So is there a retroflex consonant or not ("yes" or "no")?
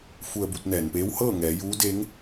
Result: no